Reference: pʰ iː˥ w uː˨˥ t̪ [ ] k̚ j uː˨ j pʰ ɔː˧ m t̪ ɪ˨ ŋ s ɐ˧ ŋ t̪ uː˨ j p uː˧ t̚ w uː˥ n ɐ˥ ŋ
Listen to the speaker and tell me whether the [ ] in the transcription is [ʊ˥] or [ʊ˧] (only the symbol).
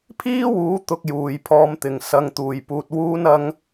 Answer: ʊ˧